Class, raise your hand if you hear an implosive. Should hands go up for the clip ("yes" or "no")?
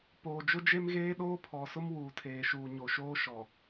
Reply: yes